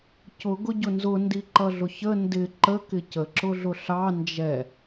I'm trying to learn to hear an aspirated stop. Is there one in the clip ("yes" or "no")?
no